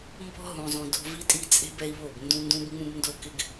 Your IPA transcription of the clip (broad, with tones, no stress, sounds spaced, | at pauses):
m b ɔ̤˦ ɦ ũ˨ zˤ ũ˨ d o̤˦ v i˦ tʼ i˦ t͡sʼ e̤˦ b ɛ˦ i̯ β o˦˨ b n d ũ˦ n d ũ˦ b ŋ͡m ũ˦ b n d o˦˨ k ɪ˦ ɡ